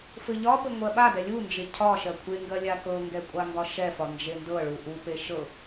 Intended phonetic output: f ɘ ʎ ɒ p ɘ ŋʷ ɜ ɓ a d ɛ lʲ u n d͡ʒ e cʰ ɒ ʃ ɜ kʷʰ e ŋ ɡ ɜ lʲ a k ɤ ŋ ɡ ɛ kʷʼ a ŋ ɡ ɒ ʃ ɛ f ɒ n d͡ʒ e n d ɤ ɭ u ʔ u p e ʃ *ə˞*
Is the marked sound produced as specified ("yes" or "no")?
no